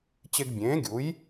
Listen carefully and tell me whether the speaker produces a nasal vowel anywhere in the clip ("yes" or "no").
yes